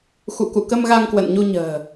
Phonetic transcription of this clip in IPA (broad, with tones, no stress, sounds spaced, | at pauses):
x ṵ˧˨ k ṵ˧˨ k ə˧ m ɣ a˧ ŋ k w ə̰˧˨ n ɲ u˧ ɲ ə̤ː˨˩